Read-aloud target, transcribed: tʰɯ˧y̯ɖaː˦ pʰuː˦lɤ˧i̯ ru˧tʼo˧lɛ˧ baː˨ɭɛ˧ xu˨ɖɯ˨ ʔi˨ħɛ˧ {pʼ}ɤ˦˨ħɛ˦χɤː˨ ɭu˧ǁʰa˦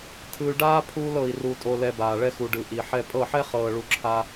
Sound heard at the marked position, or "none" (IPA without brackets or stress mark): pʼ